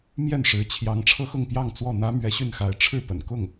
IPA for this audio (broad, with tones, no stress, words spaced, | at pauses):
mjɛ˥˩nʂɻ̩˧˥ t͡ɕʰjɑ˧˥ŋ ʈ͡ʂʰɤ˥xʊ˥˧ŋ pjɑ˥˧ŋt͡swɔ˥˩ n̪ä˥mɥɛ˧˥ɕy˥˩nxa˧˥ɪ̯ ʈ͡ʂʰɻ̩˥˩pə̰˨˩nkʊ˥˩ŋ